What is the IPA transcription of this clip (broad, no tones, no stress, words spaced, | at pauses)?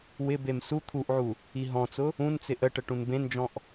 wɪbem su t̪ʰuʔʕu | iɦɔ̃t͡sʊ | ũnt͡sɪ ʔəʈə ʈũnbẽnd͡ʒɔ̃ʔ